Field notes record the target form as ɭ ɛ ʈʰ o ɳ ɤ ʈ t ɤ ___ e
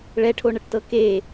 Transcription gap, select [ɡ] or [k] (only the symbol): k